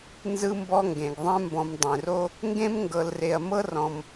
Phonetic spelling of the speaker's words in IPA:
nzɯ˦mbɔ˦ŋɡẽ˩ɡ ðˤɛ̃˦mbɔ̃˨m dˤẽ˩ro˥ | ŋɡẽ˥mŋɡɤ˨lre˨ɐ̯ mɤ˥ rɔ̃˨m

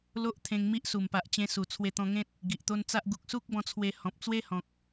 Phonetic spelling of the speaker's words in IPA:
lo˦ʔt̪ʰẽ˧ŋ mi˦ʔ su˨˩mpa˨ʔt͡ɕẽ˧su˨˩ t͡sʰwe˧t̪ɔ̃˧ŋẽ˦t̚ | ɡi˨ʔt̪o˦nt͡sa˦ʔ ɡu˨k̚su˦k̚bɔ̃˧t͡sʰwe˧ hɔ̃˨p̚t͡swe˦hɔ̃˨k̚

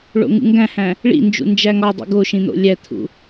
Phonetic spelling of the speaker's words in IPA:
ɭo̰ŋṵŋɡæ̃hæ̃ | ɭḭnd͡ʒṵ nd͡ʒæŋɒdˤḭ ɡoʃĩ n̪o̰lʲæt̪ʰṵ

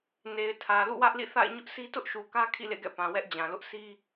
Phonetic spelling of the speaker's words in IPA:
ne˨ɪ̯tʰä˨ lṵ˦˨wä˦ʔlḭ˦˨θa̰˦˨ɪ̯ ɲʊ˦ʔsi˦tʊ˦ʔ ʃu˨kä˦ kʰḭ˦˨lḛ˦˨ɡɛ̰˦˨ pã˨wɛ˦ʔ d͡ʑã˨lʊ˦ʔ si˦

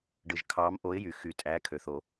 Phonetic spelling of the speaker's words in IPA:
ɖɯ˨˩ʒkʰɑː˨˥mʔo˨˥ɪ̯jy˨˩ xy˨˩˦tʼæː˨˥kʰø˨˩ θo˨˩˦

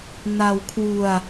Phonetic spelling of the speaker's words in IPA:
na˧wkʰwu˧a̯

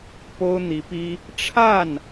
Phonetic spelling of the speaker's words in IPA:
po˥ʊ̯n̪i˧˥pi˥ | ʈ͡ʂʰa˥˩n

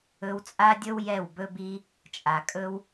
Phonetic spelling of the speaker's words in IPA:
ɵ˧wt͡sʼa˦dʲɵ˦w jɛ˦˨wbɵ˦bi˦ | t͡ʃʼa˨kʼɵ˦w

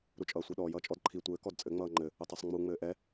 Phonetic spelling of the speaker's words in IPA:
ɾut͡ʃʼʌːsʷiɗɔːj ʌːt͡ʃʼɔdǃʰi tʷɘː kɔdt͡sʼɘ ŋ͡mʌːŋ͡ǃɘ | ʊtˤɛsˤŋ͡mu ŋ͡mɘːʔɛ

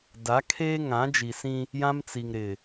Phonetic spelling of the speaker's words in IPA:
da˨˦kʰeː˦ŋã˨˦d͡ʒi˨ sĩ˦ | jã˦mt͡si˨ŋ ɾɪ˨

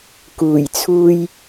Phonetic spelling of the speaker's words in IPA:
kuː˨˩jt͡sʰuː˧j

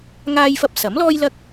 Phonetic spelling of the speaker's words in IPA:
ŋaː˥jfɐ˥p̚ sɐ˨˥mlɔː˥jlɐ˥k̚

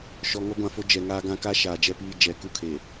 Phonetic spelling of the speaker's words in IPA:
ʃɔ˨ŋɔ˦ɡʷã˨fo˦ d͡ʒɛ˨ŋaː˦ ɡã˦ka˦ ʃaː˨d͡ʒɛ˦piː˦ d͡ʒɛ˨˦ ku˦kʰe˨

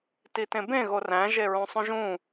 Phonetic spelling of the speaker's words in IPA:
titẽbẽ ɣoræ̃ ʒeɹõsˤũʒũ

